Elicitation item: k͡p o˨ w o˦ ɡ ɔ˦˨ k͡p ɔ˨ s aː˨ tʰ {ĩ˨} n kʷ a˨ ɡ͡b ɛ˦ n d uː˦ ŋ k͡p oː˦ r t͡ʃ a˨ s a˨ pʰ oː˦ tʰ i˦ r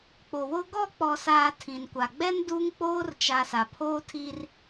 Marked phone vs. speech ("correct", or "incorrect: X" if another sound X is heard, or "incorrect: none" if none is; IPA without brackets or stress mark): correct